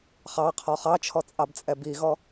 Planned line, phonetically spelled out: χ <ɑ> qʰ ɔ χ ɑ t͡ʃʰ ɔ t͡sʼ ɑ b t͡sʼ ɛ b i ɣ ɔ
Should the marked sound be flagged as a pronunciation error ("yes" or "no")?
no